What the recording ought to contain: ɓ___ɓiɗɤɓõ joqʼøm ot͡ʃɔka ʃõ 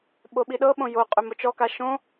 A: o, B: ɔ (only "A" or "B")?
A